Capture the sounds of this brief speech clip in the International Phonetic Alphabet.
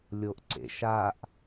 lʲ o ʔ ǀ ḛ ʃ a ʔ

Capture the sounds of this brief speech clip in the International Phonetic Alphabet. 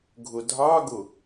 ɡʱ ʊ dʱ ɑ ɡ ʊ

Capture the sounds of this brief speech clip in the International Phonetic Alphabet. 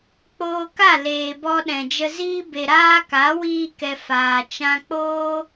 k͡p oː˧ k a˦˨ l eː˨ b ɔ˧ ɗ ɛ̃˨ d͡ʒ ə˧ z iː˧ b e˨ ɾ aː˧ k a˨˦ w iː˦ k ɛ˧ f aː˨ t͡ʃ ã˧ k͡p oː˦

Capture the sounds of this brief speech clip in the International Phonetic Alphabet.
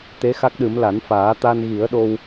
t̪ e˧˥ x a˦˥ k̚ ɗ ɨ˨˩˦ m l a˨˩˦ n f aː˨˩˦ t̪ a˧ n ɣ i˨˩˦ ə̯ ɗ o˧ w

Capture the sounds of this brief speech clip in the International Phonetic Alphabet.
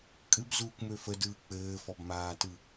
kʼ ɨ b z uː kʷ m ø f ə d ɯː k͡p ɘː f ɔ b m aː t ɯ

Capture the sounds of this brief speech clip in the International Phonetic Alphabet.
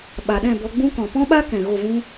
ɓ a˨ ɗ ɛ̃˦˨ b ɔ˧ ɡ͡b ũ˦ k ɔ̃˨ p ɔ̃˦ ɓ a˦ k ɛ̃˨ ɣ o˦˨ v ũ˦

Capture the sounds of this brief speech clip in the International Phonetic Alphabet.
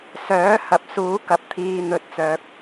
s œː˨˥ h ɐ˨ p̚ s uː˨˥ k ɐ˨ p̚ t̪ʰ iː˨ n̪ ɵ˨ t̚ t͡s œː˨ k̚

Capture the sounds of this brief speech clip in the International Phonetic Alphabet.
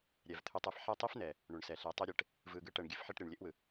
ɾʲ ɛ˨ v t̪ʰ ʉ˦ tˤ ɛ˥ f ħ ɛ˦ tˤ i˥ f n ɛ˩ | ɳ ʉ˩ ɳ s ɛ˩ ɬ e˨ tˤ e˦ ɾʲ e˨ ʈ | v ɯ˨ ɡ ɯ˦ ʈ ɛ˨ ɳ ɡʲ ʉ˦ f ħ e˦ ʈ ɾʲ ɛ˨ ɳ lʲ e˥ ʔ w ɯ˩

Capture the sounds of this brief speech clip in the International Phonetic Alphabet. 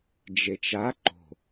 d͡ʒ e t͡ʃ a ǃ o̤

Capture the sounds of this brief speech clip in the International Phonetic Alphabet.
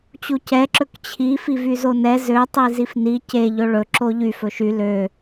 t͡ɕ u c ɛ ǁ ɵ k t͡ɕʰ i f i v y z o n ɛ z ø tˤ i z i f n i c e ʎ ɵ ɭ ɵ ǁ o ʎ y f ɵ ʃ y l ø

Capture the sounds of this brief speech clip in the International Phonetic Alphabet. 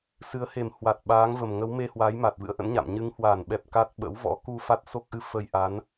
s ɨ˨˦ ə̯ h e˨˩ m h w a˨˩ t̚ ɓ aː˨˦ ŋ v ə˨˩ m ŋ ə˨˦ w m e˧ h w aː˨˦ j m aː˨˩ t̚ v ɨ̰˧˥ ə̯ ʔ ə̰˧˥ n ɲ a̰˧˨ m ɲ ɨ˨˦ ŋ h w aː˧˩ n ɓ ɛ˨˩ p̚ k a˦˥ t̚ ɓ ə̰˧˥ w v ɔ̰˧˥ k u˧ f a˦˥ t̚ s o˦˥ k̚ ʔ ɨ˧ f ə˧ j ʔ a˨˦ n

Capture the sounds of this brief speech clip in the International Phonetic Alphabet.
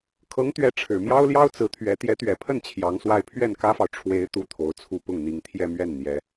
kʰ ɤ˧˥ ŋ t̪ ɥ ɛ˧˥ ʈ͡ʂʰ ɻ̩˨˩ m j ɑ˥ ʊ̯ l j ɑ˥ ʊ̯ t͡s ɹ̩˧˥ t̪ʰ ɥ ɛ˧˥ t̪ j ɛ˧˥ t̪ ɥ ɛ˨˩ pʰ ə˥˩ n t͡ɕʰ j ɑ˧˥ ŋ s w a˥˧ ɪ̯ pʰ ɥ ɛ˥˩ n k ä˥ f ɑ˨ ʊ̯ ʈ͡ʂʰ w e˧˥ ɪ̯ t̪ u˥ t̪ʰ o˧˥ ʊ̯ t͡sʰ u˥˧ p ʊ˥˩ ŋ n̪ i˧˥ ŋ t̪ʰ j ɛ˥˧ m ɥ ɛ˥˩ n n̪ j ɛ˧˥

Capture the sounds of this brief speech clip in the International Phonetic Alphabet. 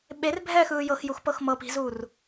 ɓ e r bʱ ɛː x ɯː j ɤ x j u x p ɤ x m ɤ p i̤ z uː r

